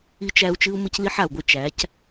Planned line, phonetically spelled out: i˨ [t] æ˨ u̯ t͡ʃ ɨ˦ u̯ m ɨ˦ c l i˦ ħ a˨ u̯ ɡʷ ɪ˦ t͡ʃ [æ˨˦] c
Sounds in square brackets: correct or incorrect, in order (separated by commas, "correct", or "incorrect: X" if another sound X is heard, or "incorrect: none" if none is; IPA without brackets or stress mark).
incorrect: t͡ʃ, correct